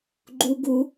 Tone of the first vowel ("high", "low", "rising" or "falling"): high